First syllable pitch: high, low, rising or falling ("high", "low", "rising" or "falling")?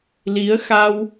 rising